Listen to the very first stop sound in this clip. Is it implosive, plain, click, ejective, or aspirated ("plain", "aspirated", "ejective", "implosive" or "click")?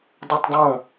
plain